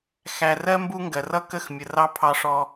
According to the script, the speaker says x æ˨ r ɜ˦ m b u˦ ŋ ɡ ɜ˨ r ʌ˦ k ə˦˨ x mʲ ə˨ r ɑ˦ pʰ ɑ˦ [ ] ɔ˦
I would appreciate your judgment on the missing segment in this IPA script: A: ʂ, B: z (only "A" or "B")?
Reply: A